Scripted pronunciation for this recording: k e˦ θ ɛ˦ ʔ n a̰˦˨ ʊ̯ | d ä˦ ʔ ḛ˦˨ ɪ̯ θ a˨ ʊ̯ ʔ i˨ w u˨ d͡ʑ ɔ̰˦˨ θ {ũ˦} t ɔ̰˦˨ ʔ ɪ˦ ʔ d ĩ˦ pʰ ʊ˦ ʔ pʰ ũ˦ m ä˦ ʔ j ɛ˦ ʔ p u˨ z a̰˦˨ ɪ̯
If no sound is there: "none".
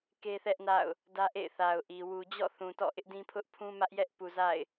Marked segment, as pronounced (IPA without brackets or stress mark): ũ˨